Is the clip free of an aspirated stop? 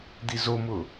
yes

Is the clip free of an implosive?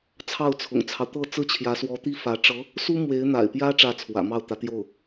yes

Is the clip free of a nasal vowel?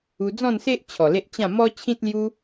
no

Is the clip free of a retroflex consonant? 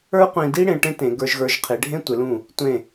no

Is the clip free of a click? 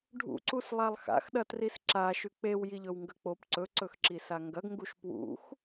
no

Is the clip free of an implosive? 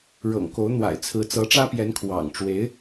yes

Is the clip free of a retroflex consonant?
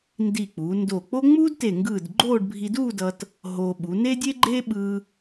no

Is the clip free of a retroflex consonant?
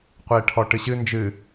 no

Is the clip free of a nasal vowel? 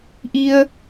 yes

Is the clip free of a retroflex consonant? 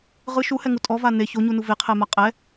yes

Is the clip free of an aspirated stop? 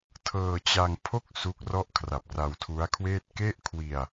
no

